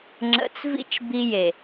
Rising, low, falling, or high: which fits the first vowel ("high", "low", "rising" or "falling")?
low